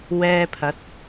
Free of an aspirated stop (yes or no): no